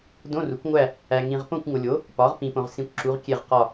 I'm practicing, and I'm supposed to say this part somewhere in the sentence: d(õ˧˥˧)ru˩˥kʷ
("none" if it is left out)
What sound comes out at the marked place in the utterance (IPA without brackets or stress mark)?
õ˧˥˧